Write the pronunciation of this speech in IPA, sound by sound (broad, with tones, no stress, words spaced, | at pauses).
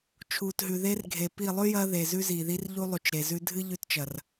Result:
t͡ʃʰuː˨tɦʉ˨ ðe˦rɡʱe˨pi˦˨ lˠʉ˦jɐː˧ ðe˨ zʉ˦ziː˨ði˦r ʎu˦lˠu˨t͡ʃɾe˨zʉ˦ dʱɨ˦ʎʉ˧tt͡ʃɐ˨r